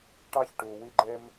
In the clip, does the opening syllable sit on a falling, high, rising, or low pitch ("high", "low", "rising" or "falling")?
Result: high